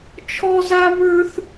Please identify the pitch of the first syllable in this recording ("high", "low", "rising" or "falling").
high